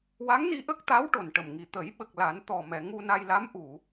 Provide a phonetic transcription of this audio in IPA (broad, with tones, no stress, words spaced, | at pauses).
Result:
wa˧˥ŋni˧ ʔə˦˥k̚t̪a˧˥w ʈo˨˩nʈə˨˩mŋi˨˩ t̪ə˨˩˦jɓə˨˩k̚ la˨˩˦n t̪ɔ˨˩mɛ˨˩˨ ŋu˧na˧jla˧˥m ʔu˨˩˨